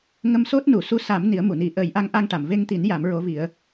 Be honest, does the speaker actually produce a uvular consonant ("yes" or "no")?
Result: no